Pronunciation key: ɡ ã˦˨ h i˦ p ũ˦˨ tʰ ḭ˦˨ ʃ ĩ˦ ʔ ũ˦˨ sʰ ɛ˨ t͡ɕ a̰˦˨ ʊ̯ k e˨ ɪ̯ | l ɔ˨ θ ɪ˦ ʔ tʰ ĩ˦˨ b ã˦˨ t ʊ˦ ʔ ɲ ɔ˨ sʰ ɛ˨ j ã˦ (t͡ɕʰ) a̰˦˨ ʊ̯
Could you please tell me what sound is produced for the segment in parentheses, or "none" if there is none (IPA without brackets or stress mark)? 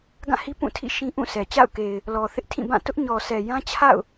t͡ɕʰ